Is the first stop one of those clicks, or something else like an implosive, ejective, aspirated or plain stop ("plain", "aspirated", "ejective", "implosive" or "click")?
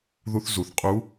ejective